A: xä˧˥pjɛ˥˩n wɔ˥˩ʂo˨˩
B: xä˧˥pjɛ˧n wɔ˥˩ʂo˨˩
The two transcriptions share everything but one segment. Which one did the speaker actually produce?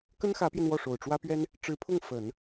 B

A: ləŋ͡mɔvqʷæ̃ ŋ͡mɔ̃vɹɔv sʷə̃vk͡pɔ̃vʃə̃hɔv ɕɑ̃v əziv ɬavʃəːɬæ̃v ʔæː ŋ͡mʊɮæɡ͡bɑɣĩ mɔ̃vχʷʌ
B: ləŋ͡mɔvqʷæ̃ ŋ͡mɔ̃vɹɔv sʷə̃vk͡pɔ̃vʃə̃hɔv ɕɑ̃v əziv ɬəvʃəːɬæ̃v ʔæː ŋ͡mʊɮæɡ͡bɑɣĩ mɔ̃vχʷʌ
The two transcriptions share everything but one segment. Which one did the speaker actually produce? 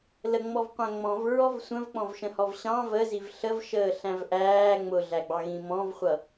B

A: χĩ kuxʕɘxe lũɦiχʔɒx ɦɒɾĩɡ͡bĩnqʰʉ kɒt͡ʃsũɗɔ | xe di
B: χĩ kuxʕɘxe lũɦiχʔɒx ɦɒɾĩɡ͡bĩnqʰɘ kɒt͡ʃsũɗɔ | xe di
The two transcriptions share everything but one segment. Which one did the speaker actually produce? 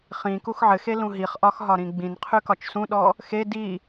A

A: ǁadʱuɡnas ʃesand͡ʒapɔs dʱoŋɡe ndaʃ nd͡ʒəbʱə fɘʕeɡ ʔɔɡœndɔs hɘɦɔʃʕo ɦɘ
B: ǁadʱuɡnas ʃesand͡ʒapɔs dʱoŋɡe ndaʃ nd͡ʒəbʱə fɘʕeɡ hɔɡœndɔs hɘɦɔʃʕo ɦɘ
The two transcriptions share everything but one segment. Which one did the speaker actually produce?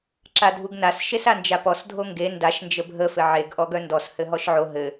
A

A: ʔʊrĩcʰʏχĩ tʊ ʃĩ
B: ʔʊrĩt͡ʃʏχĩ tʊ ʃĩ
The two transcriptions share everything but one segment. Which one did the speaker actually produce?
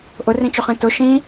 B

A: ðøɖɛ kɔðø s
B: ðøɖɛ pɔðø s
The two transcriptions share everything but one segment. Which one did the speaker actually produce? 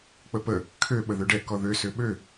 A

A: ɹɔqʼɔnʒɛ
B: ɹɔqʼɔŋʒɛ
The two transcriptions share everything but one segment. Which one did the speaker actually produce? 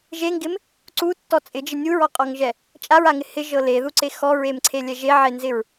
B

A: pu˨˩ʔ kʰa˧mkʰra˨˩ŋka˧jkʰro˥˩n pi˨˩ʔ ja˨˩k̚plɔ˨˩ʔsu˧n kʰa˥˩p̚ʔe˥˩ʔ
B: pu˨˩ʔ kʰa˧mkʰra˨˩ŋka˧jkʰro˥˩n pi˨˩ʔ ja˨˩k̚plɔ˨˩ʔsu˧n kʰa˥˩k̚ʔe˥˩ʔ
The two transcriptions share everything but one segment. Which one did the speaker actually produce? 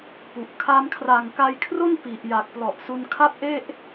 A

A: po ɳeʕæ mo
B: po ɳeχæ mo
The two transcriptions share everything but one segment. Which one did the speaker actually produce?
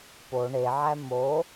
A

